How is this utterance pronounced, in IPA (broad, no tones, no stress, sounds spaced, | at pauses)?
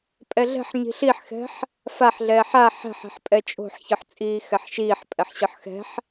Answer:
pʼ ɛ ɮ ɛ̤ ħ ɲ i̤ ɬ i ħ x ɛ̤ ħ | f a ħ ɮ ɛː ħ a ħ ɛ̤ ħ ɛ̤ ħ pʼ ɛ t͡ʃʼ o̤ ħ ç ɯ ħ t͡sʼ iː x ɛ ħ ʃ iː ħ pʼ ɛ ħ ɕ ɯ ħ x ɛ̤ ħ